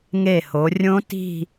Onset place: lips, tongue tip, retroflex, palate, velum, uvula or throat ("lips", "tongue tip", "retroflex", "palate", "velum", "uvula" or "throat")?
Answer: velum